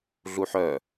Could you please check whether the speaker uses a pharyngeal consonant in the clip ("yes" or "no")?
yes